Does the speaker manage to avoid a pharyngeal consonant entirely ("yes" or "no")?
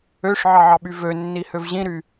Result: no